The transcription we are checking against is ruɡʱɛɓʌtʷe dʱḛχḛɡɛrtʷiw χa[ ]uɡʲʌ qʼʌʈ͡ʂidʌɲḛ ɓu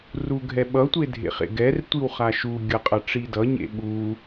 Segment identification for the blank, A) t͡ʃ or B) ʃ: B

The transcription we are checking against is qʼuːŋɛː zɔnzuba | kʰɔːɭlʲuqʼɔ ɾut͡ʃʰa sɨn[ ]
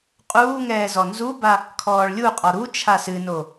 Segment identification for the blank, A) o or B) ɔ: A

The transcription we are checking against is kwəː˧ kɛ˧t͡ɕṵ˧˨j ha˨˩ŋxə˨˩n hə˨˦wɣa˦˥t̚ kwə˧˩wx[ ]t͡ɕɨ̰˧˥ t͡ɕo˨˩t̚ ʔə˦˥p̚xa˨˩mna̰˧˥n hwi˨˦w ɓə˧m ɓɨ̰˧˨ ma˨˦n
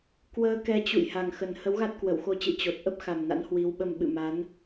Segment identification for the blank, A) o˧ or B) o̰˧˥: A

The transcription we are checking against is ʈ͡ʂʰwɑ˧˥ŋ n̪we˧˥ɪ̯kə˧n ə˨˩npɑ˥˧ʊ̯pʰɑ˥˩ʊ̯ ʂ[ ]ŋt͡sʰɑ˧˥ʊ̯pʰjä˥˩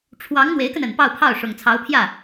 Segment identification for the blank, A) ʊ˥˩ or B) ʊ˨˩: B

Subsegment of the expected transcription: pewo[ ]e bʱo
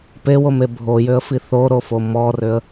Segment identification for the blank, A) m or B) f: A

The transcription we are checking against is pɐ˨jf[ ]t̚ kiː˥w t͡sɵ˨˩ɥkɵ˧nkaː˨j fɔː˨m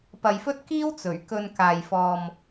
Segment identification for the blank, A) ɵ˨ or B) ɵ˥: B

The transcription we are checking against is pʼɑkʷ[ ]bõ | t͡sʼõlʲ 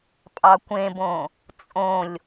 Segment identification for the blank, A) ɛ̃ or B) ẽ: B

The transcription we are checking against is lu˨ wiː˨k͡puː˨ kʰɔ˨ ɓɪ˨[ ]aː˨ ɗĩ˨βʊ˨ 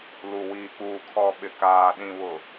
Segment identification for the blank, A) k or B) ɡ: A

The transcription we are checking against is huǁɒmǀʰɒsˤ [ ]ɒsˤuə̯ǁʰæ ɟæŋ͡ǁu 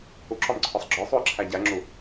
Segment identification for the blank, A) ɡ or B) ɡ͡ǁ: B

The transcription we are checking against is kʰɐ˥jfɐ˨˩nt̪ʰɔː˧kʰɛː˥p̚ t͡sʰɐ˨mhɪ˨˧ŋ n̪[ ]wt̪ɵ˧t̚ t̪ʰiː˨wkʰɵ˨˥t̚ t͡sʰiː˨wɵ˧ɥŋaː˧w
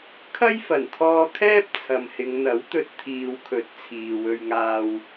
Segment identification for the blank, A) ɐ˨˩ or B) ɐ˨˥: B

